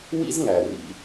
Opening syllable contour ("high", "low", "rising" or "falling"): high